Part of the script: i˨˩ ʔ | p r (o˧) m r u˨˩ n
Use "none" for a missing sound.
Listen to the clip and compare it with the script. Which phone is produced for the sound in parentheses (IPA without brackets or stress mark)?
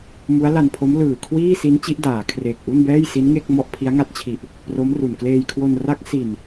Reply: o˦˥